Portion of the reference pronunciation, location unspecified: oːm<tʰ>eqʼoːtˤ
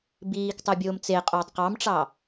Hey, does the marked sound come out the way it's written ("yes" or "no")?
no